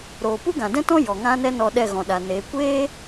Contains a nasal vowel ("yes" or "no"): yes